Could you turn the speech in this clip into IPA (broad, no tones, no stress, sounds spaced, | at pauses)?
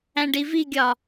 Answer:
æ̃ ɖ i v i ɡʲ ɒ